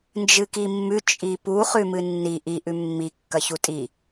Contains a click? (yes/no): no